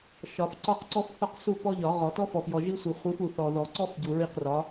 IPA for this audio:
ʃɒ˨˩˦fǀɒ˦qǀɔ˦f θɒ˦qsu˦˨ pɔ˦ʎɒ˨˩˦ʁɔ˨˩˦ tɔ˦fɔ˨f jɔ˨ʒi˦sʷi˨ χʷi˨˦fu˨ θɔ˨ðɔ˨˩˦ǀɔ˦f ɟu˨ɹi˦˨qrɒ˨˦

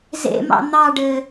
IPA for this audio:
zḛmɑ̰ n̪ɑɖɘ

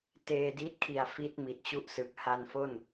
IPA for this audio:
teː˧di˦˥t̚kʰi˨˩a̯ fi˦˥t̚ mi˨˩t̚t͡ɕu˥˩ʔsɯ˨˩k̚ ha˧nfo˥˩n

